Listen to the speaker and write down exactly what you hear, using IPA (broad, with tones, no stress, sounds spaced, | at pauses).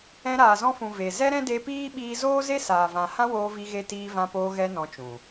ɛ̃˧ ɾ aː˨ z ɔ̃˧ f ũ˨ v e˨ z ɛ˦ ɾ ɛ̃˦ d e˧ p iː˦ ɓ iː˧ z oː˦ z e˦ s aː˨ v ã˨ h ã˦ w oː˧ v i˧ ɣ e˧ t iː˧ v ã˧ p oː˧ ɣ ɛ˧ n ɔ̃˧ t͡ʃ ũ˨